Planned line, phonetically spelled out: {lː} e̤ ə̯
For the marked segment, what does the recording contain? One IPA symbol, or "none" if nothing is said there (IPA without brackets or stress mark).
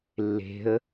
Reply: lː